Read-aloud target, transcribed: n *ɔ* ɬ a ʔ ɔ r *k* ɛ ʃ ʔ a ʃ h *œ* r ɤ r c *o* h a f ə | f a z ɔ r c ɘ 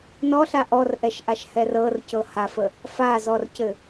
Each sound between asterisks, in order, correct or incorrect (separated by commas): correct, incorrect, incorrect, incorrect